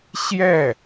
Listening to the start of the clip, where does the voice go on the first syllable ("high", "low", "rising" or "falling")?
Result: falling